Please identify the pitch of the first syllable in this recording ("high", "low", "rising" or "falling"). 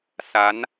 rising